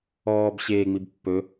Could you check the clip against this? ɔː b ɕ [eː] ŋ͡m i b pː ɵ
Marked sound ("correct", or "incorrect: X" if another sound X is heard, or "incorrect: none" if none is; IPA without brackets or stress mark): correct